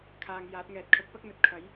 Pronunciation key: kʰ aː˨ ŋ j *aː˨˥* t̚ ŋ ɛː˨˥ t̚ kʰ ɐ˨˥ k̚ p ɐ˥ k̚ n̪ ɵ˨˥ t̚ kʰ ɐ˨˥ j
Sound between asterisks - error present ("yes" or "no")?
no